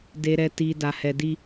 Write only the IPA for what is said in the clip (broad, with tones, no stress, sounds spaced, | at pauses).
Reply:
d e˧ ɾ ɛ˧ t i˧ d a˧ h ɛ˧ d i˦